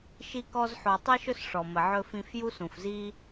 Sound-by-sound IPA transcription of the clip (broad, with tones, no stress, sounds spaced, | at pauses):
ʃ i˦ k ɔ˦ z ħ o˨ tˤ i˥ ʃ ɵ˥ s ʂ ɔ˩ m ə˩ ʕ ɵ˨ f ĩ˨ f j u˦ s ũ˩ f z i˦